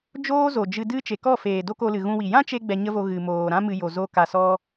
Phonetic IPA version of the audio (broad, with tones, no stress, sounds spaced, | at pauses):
d͡ʒ oː˦ z o˨ d͡ʒ ɨ˧ d ɨ˦ t͡ʃ e˨ k ɔ˦˨ f eː˨ d o˦ k o˧ l ɨ˨ ɣ ũ˧ w i˨ j ã˦ t͡ʃ e˧ ɡ͡b ɛ˧ ɲ ə˦ v o˧ ɣ ɨ˨ m oː˨ ɾ ã˦ m ɨ˧ j o˨ z o˧ k a˨ s ɔ˧